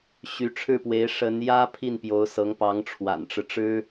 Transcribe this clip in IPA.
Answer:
ɕ y˧˥ ʈ͡ʂʰ ɻ̩˥˩ p w e˧˥ ɪ̯ ʂ ə˧˥ n j ä˥ pʰ i˥˩ n p j o˧˥ ʊ̯ s ɤ˧˥ ŋ p ɑ˧˥ ŋ ʈ͡ʂʰ w a̰˨˩ n ʈ͡ʂ ɻ̩˦ ʈ͡ʂ ɻ̩˥

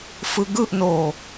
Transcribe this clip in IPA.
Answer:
f ɯ ɡ ɯ ʔ n o

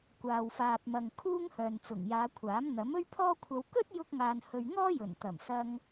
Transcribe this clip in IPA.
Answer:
kʷ aː˨ w f aː˨ p̚ m ɐ˨ ŋ kʰ uː˥ ŋ h œː˨ n t͡s ʊ˨˩ ŋ j aː˨˧ kʷʰ aː˨˥ m n̪ ɐ˨˥ m ɵ˥ ɥ pʰ ɔː˥ kʷʰ ɐ˧ w k ɵ˥ t̚ j ʊ˧ k̚ ŋ aː˨ n h ɵ˨ ɥ ŋ ɔː˥ j ɵ˨˩ n t̪ ɐ˨˩ m s ɐ˧ ŋ

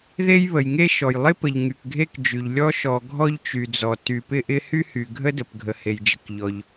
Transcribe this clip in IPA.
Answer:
ð e˥ j β ə˩ j ŋ e˥ ʃ ɔ˩ j lˠ ɪ˥ p ə˩ ʎ ŋ y˩ k ɡʱ e˥ k d͡ʒ y˩ ʎ lʲ ɔ˥ ʃ ɔ˩ ɡʱ ɔ˥ ʎ t͡ʃ y˩ d͡z ɔ˩ t y˩ p ɪ˥ ʔ ɪ˥ h y˥ h y˩ ɡʱ ə˥ d ə˩ p ɡʱ ə˩ h e˩ j d͡ʒ ə˩ k ʎ ɔ˩ ʎ

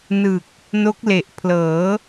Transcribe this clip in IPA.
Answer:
n ɯ˨˩ k̚ | n o˦˥ k̚ l e˨˩ ʔ pʰ l ɤː˩˦

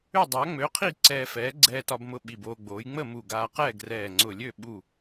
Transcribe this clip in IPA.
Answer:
ø˥˨ dˤ a˨˥ ŋ͡m ø˨˥ qʰ i˥˨ ǀ ɛː˧ f ɛː˨˥ ɡ͡ǀ ɛː˧ t ɒ˧ b m ʊ˧ ɓ i˧˩ b oː˧ ɡ͡b oː˨˥ j ŋ͡m ə˥˨ m u˧˩ ɡ aː˧ q ɛː˥˨ ɡ r ɛː˧˩ ŋ͡ǀ ʊ˧˩ lʲ ø˥˨ ɓ u˧˩

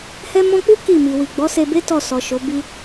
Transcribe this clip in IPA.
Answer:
h ɛ˧ m ɔ̃˧ k͡p u˦ k i˦˨ m i˨ w i˨ ɡ͡b ɔ˨˦ s e˧ b e˦ t ɔ˦˨ s ɔ˨ ʃ o˨˦ b i˦

